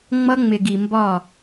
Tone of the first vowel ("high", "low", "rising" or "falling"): high